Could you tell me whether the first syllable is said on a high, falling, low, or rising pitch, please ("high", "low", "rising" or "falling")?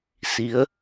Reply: rising